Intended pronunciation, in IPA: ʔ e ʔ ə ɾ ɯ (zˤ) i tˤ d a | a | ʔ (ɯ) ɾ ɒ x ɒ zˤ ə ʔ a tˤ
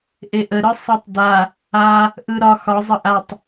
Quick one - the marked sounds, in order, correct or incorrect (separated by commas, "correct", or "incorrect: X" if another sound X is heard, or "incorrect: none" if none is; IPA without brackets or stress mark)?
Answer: incorrect: sˤ, correct